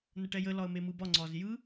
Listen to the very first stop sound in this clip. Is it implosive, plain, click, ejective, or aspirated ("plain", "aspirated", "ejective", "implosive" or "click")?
plain